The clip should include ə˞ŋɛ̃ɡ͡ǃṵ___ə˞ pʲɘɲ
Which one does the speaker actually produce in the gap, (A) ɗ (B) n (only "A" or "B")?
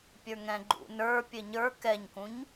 B